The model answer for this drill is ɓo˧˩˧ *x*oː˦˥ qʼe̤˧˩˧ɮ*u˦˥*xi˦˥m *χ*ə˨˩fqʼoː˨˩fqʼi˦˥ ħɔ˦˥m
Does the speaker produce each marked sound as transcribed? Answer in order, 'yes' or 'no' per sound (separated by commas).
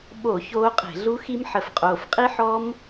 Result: no, yes, no